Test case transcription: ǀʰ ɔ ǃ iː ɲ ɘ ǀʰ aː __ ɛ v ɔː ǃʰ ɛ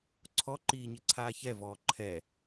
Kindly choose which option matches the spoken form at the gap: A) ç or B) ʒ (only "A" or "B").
A